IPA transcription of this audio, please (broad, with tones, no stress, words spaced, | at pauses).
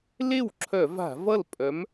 le˥˩wǁʰœ˧˩˧va̤˧˩˧ vʌ˥˩lpʼœ˨˥m